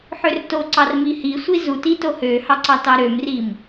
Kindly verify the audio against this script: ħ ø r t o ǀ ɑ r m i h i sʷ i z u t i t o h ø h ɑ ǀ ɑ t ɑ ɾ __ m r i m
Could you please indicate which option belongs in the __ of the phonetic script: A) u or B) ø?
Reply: B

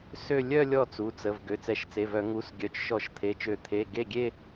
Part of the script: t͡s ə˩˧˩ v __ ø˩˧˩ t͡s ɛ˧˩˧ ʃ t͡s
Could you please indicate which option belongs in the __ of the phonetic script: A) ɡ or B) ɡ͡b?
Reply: A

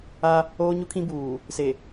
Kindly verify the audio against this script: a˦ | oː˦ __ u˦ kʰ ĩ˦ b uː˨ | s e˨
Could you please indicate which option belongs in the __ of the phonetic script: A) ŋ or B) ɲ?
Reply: B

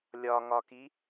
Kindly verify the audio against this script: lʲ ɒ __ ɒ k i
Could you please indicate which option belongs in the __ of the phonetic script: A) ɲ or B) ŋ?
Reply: B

